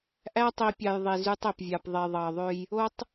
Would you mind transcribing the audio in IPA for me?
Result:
ʔ æ˦ tˤ i˨ pʲ ɑ˨ j ðˤ i˨ z y˦ tˤ e˨ p vʲ ɑ˨ p ðˤ e˨ ðˤ ɑ˨ ðˤ ø˦ j | o˦ tˤ

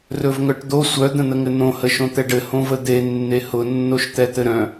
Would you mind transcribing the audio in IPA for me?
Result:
r ɵ v ŋ œ ʈ d̪ o sʷ œ d̪ ə̃ n̪ ə ŋ ɘ n̪ õ h ə ʃ õ t̪ ɛ ɖ ɘ h õ v ə d̪ e nː e h ʊ nː o ʃ t̪ ɛ t̪ ɘ ɾ œ̃

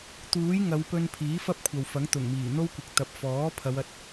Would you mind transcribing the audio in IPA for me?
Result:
t̪ uː˨˥ j ŋ ɐ˨˧ w p ɵ˧ n pʰ iː˨˥ f ɐ˥ p̚ kʷʰ ɐ˨ w f ɐ˨˥ ŋ t̪ ʊ˨˩ ŋ m iː˨˩ n̪ o˥ w kʷ ɪ˨ k̚ t̪ ɐ˨ p̚ f ɔː˨˥ pʰ ɐ˨˧ w ɐ˨˥ t̚

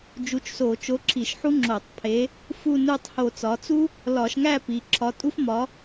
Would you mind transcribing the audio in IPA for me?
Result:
d͡ʒ u˨˥ t͡ʃ s o˧˩˧ t͡ʃ o˨˥ ǁʰ i˧˩˧ ʃ ħ u˥ ŋ͡ǁ o˧˩˧ tˤ pʰ e˨˥ | f u˥˧ n u˥˧ tˤ h o˧˩˧ t͡s ɒ˩˧ t͡s u˥ | l ɒ˧˩˧ ʃ ŋ æ˥˧ p i˩˧ ǁʰ ɒ˨˥ tʼ u˥ f m ɒ˨˥

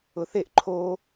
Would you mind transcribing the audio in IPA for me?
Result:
ʊ θ e ʔ ǃʰ o

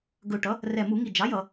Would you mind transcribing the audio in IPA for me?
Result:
ɡ ɵ˨˩ ʈ ʌ˩˥ | r ɛ˨˩ m u˧˩˧ ŋ i˨˩ d͡ʒ ɑ˩˥ j ʌ˧˩˧

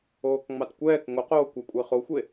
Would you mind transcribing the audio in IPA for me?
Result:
oː k ŋ͡m ɑ t kʷ ɛː k ŋ o q oː kʷ ɜ kʷʼ e χ o xʷ e

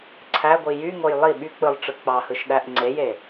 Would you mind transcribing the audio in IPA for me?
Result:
ǀʰ æ ɡʷ i j y ŋ o j lˠ i ɓ y k͡p ɯ lˠ ʈ͡ʂ ɯ k͡p ɑ h ɯ ʃ ɗ æ ʔ ŋ͡ǀ e j e

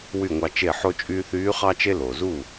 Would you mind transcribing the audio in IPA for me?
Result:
w y˥˩ ŋʷ ɑ˧ t͡ʃ e˥˩ ħ o˧ t͡ʃʼ yː˧ θ yː˧˥ χ ɑ˥ t͡ʃ e˥ l o˩ z u˥˩

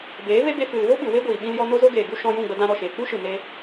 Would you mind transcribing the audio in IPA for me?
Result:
b eː˨˦ v e˦ b e˧ f ɨ˨ l v o˦ ɓ ɨ˨ w e˦ ɡʷ iː˨ ɓ ĩ˧ l j ɔ˧ n o˦ z o˦ ɡ eː˨ ɡ u˦ ʃ ɔ̃˧ j ũ˦˨ ɡ͡b ə˧ d ã˧ ɾ ɔ˨ ʃ eː˨ k͡p u˦ ʃ ɨ˨ n e˧

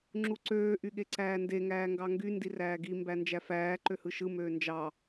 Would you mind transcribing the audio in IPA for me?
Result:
ŋ͡ǁ u ǀ øː ʔ y ɠ e ǀ æː n d e ŋ æː ŋ ɡ ɑ ŋ ɡ y n d i r æː ɡ i m b æ n d͡ʒ æ f æː ǃ ø h ɯ ʃ ɯ m øː n d͡ʒ ɑ

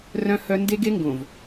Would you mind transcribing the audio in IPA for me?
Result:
r œ̃˦ h œ˦ n d e˦ ɡ e˦ ŋ ɡ õ˨ v

